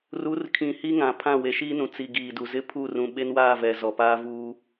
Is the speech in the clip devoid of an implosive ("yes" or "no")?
no